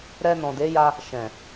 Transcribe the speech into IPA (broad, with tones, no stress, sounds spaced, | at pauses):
ɾ ɛ˧ n ɔ̃˨ d e˨˦ j a˧ | ʃ ɛ̃˨